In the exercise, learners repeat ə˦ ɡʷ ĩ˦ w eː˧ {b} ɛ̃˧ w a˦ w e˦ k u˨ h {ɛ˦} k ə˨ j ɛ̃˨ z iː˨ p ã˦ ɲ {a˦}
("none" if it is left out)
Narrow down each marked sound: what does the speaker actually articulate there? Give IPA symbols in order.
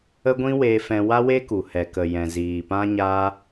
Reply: f, ɛ˨, a˦

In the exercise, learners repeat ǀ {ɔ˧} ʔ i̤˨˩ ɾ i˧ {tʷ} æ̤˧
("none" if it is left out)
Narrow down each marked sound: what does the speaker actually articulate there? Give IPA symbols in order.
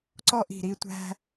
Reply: ɔ˧, tʷ

